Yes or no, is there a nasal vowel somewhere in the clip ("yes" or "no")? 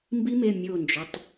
no